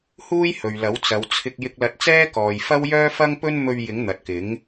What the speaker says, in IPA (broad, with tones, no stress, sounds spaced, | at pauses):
h uː˥ j h ɵ˨ ɥ l ɐ˨˥ w t͡s ɐ˨˧ w t͡sʰ ɪ˧ k̚ j ɪ˧ k̚ l ɐ˧ t̚ t͡s ɛː˥ k ɔː˨ j f ɐ˥ w j œː˥ f ɐ˥ ŋ p ɵ˥ n m ɵ˧ ɥ j ɪ˨˥ ŋ n̪ ɐ˨ t̚ k ɪ˨˥ ŋ